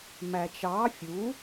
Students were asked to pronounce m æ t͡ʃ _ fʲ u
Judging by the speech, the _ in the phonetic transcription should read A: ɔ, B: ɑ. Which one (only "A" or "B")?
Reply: B